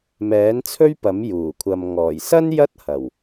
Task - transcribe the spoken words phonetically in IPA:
m ɛː˨˥ n t͡sʰ ɵ˥ ɥ p ɐ˨˥ m j uː˨˩ kʷʰ ɐ˨ m ŋ ɔː˨˩ j s ɐ˥ n j ɐ˥ t̚ h ɐ˨˩ w

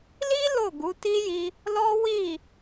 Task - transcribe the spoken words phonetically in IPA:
l i˦ l o˦˨ ɡ u˨˦ t i˦ j i˧ | l ɔ˦ w i˦˨

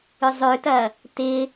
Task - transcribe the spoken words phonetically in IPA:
ʏ zˤ ø t ɐ | t ɪ

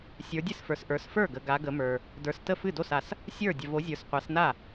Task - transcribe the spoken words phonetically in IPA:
sʲ ə˞˨˦ dʲ ɨ˥˩ s f ə˞˨ s ʔ ə˞˨˦ s f ə˞˥˩ ɡ ə˨ ɡ a˨˦ ɡ ə˨˦ m ə˞˨ | d ə˞˨ s t ə˥˩ f ɨ˥˩ d o˥˩ s a˨ s | sʲ ə˞˥˩ dʲ ə˨ v o˨˦ zʲ ə˞˨ s qʷ a˨˦ s n a˥˩

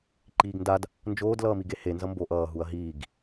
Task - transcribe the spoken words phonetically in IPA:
ǃ iː ɡ n d a d | n d͡ʒ oː d l ʌː m i ɡ e h e n z ʌ m b o ʔ ʌː ɦ u ɐ̯ ɦ iː ɡ

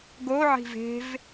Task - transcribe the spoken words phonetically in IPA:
ɡ o ʕ i̤ v e̤ v

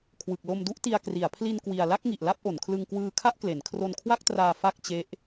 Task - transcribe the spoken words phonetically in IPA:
kʰ w ɯ˨˩ k̚ l o˧ m d u˥˩ ʔ t i˧ a̯ k r i˩˦ a̯ pʰ l i˧ n k w i˨˩ a̯ l a˥˩ k̚ ŋ i˨˩ ʔ l a˥˩ p̚ ʔ o˩˦ n kʰ l ɯ˧ ŋ k w ɯː˧ kʰ a˥˩ ʔ k l e˩˦ n kʰ r o˧ n kʰ w a˥˩ k̚ t r aː˧ f a˥˩ k̚ t͡ɕ e˦˥ ʔ

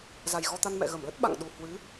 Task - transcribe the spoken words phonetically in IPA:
z a˨˩ j ɣ ɔ˧ t̪ a˧ n m ɛ̰˧˨ ɣ ə˧˩ m l ə˦˥ t̚ ɓ a̰˧˨ ŋ ɗ u˨˩ h w ɨ˨˦

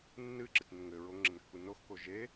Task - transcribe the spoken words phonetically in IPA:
nː ɨ ǁ ɨ t n ɘ ŋ ɘ ɹ o ŋ ŋ͡ǁ ɘ n kː u n o x k o ʒ e

